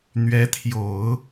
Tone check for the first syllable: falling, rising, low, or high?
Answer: rising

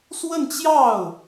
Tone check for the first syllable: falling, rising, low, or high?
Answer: falling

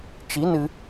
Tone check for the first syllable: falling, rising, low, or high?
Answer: rising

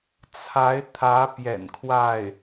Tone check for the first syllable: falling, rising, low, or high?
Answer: rising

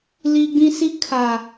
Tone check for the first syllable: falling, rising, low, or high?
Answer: high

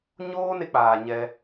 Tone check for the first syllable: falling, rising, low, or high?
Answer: high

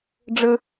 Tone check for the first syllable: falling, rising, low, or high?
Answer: low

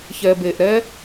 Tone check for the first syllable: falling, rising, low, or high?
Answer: low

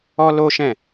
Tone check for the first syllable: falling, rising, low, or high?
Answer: high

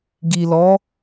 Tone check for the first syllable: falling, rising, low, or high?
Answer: low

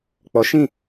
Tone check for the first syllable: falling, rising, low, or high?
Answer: rising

